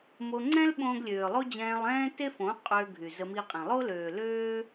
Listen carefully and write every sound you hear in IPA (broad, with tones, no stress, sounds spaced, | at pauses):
m o˧ ŋ͡ǀ ɛ̃˦ l ɓ õː˧ ɡ lʲ øː˨ lˠ o˦ d͡ʑ ɛ̃ː˧ lˠ ɛ̃ː˦ t e˦ f õ˨˦ qʼ øː˧ ɡʱ y˨ z ə˧ m i˧ qʼ ẽ˨ lˠ o˦ l øː˨ l øː˦